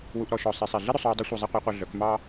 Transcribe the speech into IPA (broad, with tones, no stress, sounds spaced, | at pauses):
w u˧ ʔ ɾ ɔ˩˧ ʃ ɔ˩˧ sˤ i˩˧ sˤ i˩ ɮ i˥ ɾ ɵ˩˧ sˤ w u˧ dˤ ɵ˧˥ sʷ ɑ˧ zˤ e˥ qʷ æ˧˥ qʷ ɛ˧ ɮ œ˩˧ k m ɑ˥